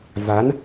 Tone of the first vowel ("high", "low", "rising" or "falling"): rising